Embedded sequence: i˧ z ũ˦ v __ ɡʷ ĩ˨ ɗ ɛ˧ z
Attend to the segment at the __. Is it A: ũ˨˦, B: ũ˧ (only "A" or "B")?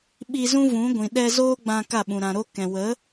A